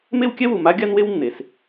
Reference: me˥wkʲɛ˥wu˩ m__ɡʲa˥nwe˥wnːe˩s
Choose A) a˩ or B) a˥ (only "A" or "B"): B